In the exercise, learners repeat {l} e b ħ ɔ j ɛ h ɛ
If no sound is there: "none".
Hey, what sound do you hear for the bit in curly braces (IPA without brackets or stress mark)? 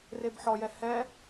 r